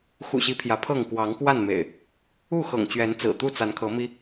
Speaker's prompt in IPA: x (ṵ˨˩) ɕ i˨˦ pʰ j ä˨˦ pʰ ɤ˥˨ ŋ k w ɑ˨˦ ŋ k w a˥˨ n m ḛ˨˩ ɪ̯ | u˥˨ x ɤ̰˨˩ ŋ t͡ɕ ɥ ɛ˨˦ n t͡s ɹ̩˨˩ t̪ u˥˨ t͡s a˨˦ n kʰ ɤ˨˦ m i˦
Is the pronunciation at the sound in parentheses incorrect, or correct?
correct